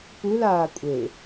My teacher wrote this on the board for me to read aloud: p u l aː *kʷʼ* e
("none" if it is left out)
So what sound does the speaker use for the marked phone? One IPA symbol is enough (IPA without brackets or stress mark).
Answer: kʷʼ